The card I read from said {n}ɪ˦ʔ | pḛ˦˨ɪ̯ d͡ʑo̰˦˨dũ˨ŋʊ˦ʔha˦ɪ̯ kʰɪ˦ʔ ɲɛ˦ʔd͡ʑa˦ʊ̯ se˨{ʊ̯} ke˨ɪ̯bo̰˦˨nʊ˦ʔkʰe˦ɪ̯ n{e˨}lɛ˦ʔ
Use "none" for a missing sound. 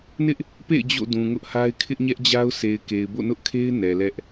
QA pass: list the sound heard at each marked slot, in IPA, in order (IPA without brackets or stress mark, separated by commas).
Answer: n, ɪ̯, ɛ˨